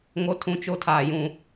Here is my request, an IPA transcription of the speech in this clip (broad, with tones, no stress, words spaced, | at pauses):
ŋo˦tʰũ˦t͡ʃo˦ tʰaː˨jũ˨